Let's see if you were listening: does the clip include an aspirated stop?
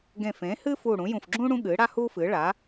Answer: no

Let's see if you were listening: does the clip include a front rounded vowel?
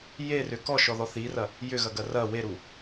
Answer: yes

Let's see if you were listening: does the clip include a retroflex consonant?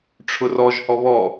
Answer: yes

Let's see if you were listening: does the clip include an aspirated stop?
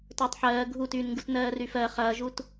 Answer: no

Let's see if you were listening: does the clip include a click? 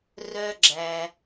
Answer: yes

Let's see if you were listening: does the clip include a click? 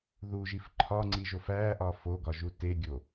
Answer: yes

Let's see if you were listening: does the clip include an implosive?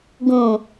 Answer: no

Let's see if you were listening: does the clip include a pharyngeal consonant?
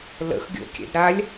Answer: no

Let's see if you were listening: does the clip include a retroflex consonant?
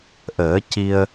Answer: no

